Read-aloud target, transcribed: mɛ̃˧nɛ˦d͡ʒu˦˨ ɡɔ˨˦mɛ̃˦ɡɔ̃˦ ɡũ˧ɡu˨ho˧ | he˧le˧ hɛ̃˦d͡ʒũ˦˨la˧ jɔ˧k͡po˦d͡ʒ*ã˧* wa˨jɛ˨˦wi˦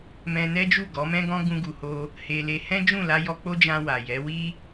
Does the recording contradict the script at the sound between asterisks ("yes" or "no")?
no